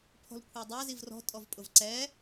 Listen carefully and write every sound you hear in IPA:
pʰ ɔ̤ l kʷʰ ɛ dˤ æ z i v r ɔ̤ tʼ ɔ v pʼ ʊ v ǀ ɛ

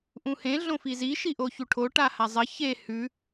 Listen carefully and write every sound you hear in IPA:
ʔ ũ h ẽ ɮ õ f i z i ʃ i ʔ o ç u ʈʰ o ʈ a h a zˤ ɐ ç e h ʉ

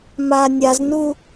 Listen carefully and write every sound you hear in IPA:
m a nʲ a z n u

